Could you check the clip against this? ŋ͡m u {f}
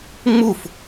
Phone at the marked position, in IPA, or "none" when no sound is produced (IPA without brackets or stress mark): f